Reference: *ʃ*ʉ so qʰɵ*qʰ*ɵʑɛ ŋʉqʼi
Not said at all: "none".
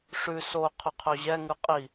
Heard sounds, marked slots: ʂ, qʰ

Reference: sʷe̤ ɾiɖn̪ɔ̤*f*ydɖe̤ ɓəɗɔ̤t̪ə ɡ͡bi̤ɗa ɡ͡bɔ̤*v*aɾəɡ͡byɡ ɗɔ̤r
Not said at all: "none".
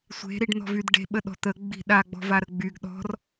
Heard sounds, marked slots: v, v

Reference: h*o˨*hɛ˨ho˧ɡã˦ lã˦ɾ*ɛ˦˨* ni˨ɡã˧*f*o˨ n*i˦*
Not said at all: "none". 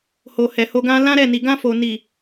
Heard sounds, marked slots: o˨, ɛ˦˨, f, i˨

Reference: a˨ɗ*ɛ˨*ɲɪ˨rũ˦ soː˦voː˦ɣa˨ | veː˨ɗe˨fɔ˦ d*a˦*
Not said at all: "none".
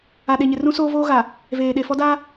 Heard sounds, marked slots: e˨, a˦

